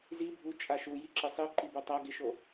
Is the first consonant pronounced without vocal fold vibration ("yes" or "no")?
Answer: no